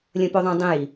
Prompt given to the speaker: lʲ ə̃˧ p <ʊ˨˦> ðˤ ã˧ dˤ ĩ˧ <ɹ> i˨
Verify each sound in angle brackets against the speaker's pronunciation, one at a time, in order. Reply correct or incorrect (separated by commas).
incorrect, incorrect